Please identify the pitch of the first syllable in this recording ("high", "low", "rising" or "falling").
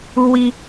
high